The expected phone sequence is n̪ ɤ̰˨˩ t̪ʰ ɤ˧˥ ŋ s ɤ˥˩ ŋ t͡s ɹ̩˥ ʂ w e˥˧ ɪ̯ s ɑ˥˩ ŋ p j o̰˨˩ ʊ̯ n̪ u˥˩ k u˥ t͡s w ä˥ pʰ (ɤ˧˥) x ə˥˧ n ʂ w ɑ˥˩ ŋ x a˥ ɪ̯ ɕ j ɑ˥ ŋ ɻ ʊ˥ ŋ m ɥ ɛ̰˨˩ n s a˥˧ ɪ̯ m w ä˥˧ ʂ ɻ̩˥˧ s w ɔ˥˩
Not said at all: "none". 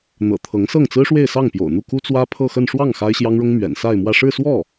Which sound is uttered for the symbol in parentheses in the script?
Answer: ɤ˥˧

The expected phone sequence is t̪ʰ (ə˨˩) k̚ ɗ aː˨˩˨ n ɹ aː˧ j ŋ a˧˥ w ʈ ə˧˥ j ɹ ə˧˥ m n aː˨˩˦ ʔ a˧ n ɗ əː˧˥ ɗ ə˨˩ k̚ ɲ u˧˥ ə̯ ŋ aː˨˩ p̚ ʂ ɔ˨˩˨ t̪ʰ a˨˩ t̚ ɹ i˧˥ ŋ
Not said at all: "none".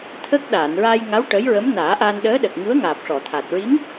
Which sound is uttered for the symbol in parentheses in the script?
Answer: ə˦˥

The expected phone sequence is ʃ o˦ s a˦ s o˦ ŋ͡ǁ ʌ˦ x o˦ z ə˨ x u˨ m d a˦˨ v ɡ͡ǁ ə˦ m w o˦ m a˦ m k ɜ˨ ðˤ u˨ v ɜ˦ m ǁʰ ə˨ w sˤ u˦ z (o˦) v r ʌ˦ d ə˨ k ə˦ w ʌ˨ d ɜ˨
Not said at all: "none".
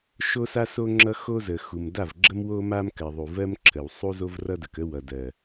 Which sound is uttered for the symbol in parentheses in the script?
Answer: o˦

